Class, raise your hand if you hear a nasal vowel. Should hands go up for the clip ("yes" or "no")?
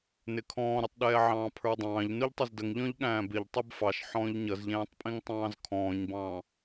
yes